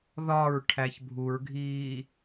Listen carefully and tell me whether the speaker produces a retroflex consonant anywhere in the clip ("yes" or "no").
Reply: yes